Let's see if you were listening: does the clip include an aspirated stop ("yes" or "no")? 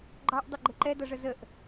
no